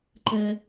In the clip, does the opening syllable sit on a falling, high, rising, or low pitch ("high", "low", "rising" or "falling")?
high